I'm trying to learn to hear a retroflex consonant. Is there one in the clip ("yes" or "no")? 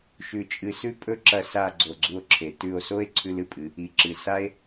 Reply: no